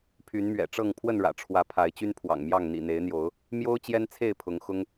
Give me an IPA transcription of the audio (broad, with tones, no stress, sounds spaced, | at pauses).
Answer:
pʰ y˨˦ n m ɥ ɛ̰˨˩ ʈ͡ʂ ɤ˥˨ ŋ pʰ w ə˥˨ n ɻ ä̰˨˩ ʈ͡ʂʰ w ä˨˦ pʰ a˨˦ ɪ̯ t͡ɕ y˦ n pʰ w ɑ̰˨˩ ŋ m j ɑ˥˨ ŋ n̪ ḭ˨˩ n̪ e˨˦ ɪ̯ n̪ j o˨˦ ʊ̯ | m j o˦ ʊ̯ t͡ɕ j ɛ˦ n t͡sʰ e˥˨ ɪ̯ pʰ ʊ˨˦ ŋ x ʊ˦ ŋ